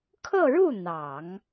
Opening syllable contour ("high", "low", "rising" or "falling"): falling